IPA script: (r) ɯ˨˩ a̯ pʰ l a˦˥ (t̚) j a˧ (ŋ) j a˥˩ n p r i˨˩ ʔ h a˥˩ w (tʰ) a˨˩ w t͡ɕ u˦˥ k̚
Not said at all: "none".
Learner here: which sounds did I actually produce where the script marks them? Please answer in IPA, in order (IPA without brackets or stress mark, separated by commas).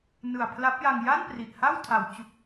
n, p̚, ŋ, tʰ